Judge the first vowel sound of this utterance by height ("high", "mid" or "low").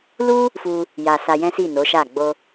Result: high